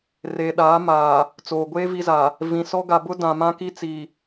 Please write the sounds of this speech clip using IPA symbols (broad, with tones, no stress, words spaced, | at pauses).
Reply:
reː˨ɗaː˨˦maː˨ | t͡soː˨ɡʷeː˦ vi˦za˨ | vĩ˨sɔ˦ ɡa˨bʊ˦ dã˨ mã˦ki˦t͡si˨